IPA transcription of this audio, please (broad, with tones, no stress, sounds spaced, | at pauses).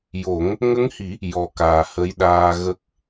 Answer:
j o˨˩˦ ŋ | ŋ ə˧˥ ŋ h i˨˩˦ | j ɔ˨˩ k aː˨˩ h ə˧˥ j ɗ aː˧ ɣ ə˦˥ k̚